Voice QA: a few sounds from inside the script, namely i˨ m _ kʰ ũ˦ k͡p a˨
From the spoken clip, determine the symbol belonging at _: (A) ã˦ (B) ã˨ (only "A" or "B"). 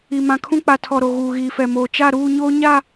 B